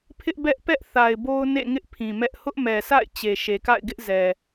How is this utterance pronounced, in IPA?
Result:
pʰɪ˦ʔbɛ˦ʔ pɛ˦ʔθa˨ɪ̯ bo˦ʊ̯nḛ˦˨ŋɪ˦ʔ pʰĩ˨mɛ˦ʔ hʊ˦ʔmɛ˨sa̰˦˨ɪ̯ t͡ɕe˨ʃe˨ka̰˦˨ɪ̯ɡɪ˦ʔ zɛ˨

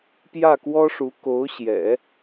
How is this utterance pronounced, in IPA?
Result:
pjä˥˩kwɔ˥ʂu˧˥ ko˧˥ʊ̯ɕjɛ̰˨˩˦

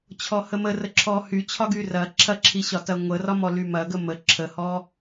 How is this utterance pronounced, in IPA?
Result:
t͡ɕʰɔhəmə rəǁʰɔhy t͡ɕʰɒɡyrɐ ǁʰɐǁʰiɕɒ tɐŋʷə rɒmɔlymɐ ɡəmə ǁʰəhɔ

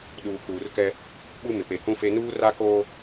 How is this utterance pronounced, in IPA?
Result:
ɗuː˨kuː˨rkɛ˦ | ɓu˦mɪ˨ pe˨hũ˦fe˦ nuː˦ra˦koː˦

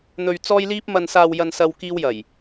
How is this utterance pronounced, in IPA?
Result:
n̪ɵ˨ɥ t͡sɔː˧jliː˧p̚ mɐ˨nsaː˨wjɐ˨nsɐ˨w kiː˧wjɐ˨˩j

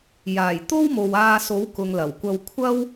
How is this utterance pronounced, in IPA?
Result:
jaː˨˩jt̪o˥w mo˨waː˧so˨˥w kʊ˨ŋlɐ˨˩wkʷɐ˧w kʷʰɐ˥w

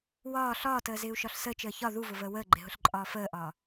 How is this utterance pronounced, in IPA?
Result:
wɒː ɬɒːtəːzɪːu̯ʃɒɬ səːt͡ʃəː çɒ ðuvʊvəː wəːɡ͡ǃɪɦʊɬǃʼɒː fəːʔɒː

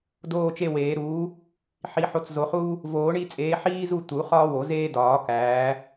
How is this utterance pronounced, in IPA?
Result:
doː˦˨t͡ʃe˦˨weː˨˩˦ ɾuː˨˦ | ħi˨˩˦ħo˨˦t͡szo˨˩˦χuː˦ | voː˨˩˦ɳi˦˨t͡sʼeː˨˦ ħiː˦zu˦˨ t̪u˨˩˦χɒː˦wo˨˩˦zeː˦ dɒː˨˩˦ kæː˨˦

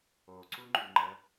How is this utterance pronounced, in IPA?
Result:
oǀuŋ͡ǃuŋ͡ǃə

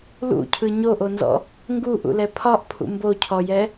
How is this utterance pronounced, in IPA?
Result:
lṵcʰɯ ɲoʔonzɔ̰ | ŋɡuʔṵlɛ pʰɒʔpʰṵ mbocʰɔjɛ

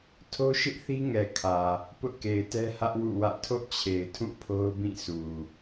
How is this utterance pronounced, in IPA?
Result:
tʰo˦ʃɪ˦ʔθi˦ŋɛ˨ kʰä˨ | pʊ˦ʔke˨ɪ̯tɛ˦hä˦ʔ wṵ˦˨wä̰˦˨ tʰo̰˦˨t͡ɕʰe˨ɪ̯tʰũ˦˨ pʰo˦ʊ̯bĩ˦˨su˨

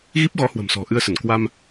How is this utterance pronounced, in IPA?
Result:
ɣi˦˥p̚ɣɔ˨˦ hwə̤˨˩msɔ̤˨˩ʔɨ˧ə̯sə˧˩n kwa˧m

